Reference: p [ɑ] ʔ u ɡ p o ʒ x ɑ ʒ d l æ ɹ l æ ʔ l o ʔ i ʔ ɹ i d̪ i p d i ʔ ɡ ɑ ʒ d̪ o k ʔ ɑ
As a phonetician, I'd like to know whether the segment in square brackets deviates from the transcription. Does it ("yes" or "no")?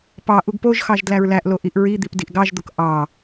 no